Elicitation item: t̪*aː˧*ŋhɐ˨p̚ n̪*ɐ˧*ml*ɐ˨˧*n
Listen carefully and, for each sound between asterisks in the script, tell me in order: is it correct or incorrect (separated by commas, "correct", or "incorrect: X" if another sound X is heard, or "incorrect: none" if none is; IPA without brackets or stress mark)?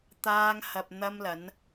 correct, correct, correct